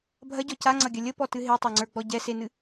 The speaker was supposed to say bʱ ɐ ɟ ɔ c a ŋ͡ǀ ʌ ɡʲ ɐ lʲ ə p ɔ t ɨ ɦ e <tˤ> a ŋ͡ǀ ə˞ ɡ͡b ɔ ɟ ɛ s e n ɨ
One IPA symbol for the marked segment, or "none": tˤ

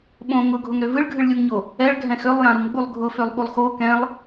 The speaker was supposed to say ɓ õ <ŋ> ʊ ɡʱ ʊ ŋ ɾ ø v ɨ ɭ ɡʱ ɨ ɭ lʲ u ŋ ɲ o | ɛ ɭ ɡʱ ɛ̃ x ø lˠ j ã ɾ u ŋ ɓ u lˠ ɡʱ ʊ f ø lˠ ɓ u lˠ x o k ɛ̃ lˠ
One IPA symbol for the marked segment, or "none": ŋ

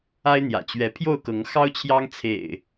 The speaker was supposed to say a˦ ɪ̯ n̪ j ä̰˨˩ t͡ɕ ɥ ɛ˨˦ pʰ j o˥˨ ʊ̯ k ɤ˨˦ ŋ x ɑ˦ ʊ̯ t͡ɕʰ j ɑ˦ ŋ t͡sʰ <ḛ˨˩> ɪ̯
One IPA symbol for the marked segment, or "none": ḛ˨˩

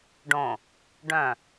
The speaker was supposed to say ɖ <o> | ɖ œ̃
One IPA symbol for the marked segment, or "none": õ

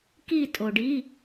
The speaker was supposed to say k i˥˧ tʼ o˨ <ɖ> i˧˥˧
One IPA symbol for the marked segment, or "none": ɖ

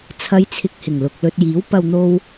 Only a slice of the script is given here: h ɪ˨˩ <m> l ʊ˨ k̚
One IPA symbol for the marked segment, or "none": ŋ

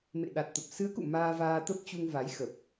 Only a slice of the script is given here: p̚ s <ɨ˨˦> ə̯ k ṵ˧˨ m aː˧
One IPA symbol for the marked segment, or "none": ɨ˨˦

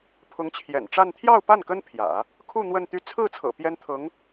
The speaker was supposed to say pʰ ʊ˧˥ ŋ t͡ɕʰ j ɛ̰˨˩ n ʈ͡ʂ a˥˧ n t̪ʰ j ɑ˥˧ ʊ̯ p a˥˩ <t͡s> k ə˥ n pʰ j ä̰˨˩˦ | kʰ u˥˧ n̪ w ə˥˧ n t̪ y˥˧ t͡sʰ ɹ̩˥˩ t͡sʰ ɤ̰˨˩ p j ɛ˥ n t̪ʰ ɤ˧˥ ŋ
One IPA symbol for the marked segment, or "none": n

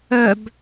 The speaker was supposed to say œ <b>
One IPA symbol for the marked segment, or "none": b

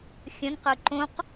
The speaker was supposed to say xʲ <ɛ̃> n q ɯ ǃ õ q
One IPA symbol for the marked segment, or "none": ə̃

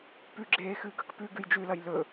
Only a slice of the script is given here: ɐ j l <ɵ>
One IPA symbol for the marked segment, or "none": ɵ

